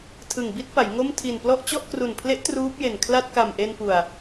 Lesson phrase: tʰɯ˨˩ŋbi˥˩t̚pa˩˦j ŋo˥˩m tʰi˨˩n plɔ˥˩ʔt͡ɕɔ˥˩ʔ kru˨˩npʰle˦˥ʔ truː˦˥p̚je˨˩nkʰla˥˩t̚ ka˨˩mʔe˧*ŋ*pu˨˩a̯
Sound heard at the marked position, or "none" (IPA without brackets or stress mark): n